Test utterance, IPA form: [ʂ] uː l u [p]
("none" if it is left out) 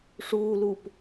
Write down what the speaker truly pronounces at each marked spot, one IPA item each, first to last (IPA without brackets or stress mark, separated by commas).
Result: ʂ, p